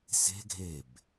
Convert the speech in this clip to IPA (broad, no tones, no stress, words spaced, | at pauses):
se̤ ɡʱeb